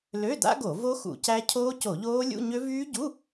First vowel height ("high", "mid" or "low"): mid